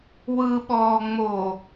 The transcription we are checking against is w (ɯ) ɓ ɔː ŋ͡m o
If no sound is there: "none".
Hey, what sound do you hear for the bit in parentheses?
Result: ɯ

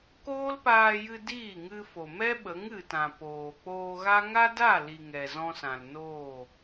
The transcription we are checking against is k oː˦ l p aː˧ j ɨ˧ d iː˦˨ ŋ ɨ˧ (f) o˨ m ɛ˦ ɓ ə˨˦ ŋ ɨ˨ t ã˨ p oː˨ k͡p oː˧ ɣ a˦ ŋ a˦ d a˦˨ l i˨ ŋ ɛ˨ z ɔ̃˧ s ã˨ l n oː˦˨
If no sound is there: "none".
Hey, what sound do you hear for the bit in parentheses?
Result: f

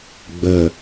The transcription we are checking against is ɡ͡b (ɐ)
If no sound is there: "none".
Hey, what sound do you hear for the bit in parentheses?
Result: ə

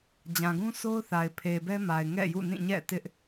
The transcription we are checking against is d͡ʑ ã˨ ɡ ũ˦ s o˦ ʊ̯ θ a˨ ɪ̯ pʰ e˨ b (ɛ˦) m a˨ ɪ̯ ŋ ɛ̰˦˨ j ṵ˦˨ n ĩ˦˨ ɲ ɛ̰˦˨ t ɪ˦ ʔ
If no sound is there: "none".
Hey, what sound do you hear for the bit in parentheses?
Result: ɛ˦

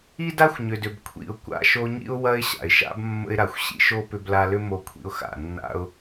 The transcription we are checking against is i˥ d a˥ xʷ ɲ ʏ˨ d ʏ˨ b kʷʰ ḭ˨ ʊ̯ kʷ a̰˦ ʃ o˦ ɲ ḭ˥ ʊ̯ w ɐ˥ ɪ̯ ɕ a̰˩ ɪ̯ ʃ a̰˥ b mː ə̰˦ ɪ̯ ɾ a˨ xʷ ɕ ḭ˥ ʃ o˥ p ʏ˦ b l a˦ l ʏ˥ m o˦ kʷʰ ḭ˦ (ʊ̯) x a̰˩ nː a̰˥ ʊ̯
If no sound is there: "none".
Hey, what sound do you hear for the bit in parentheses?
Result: ʊ̯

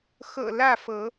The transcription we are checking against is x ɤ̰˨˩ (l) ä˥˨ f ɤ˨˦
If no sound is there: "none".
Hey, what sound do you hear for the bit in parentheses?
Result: l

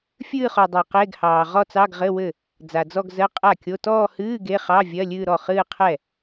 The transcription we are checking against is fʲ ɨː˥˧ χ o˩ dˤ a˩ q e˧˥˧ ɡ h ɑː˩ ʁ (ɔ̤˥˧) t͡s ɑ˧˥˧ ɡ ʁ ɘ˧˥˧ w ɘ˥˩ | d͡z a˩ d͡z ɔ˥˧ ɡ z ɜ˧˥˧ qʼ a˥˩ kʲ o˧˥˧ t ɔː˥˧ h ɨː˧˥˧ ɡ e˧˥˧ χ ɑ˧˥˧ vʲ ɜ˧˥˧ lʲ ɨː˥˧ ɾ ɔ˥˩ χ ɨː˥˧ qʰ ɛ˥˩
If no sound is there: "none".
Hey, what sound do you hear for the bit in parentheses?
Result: ɔ˥˧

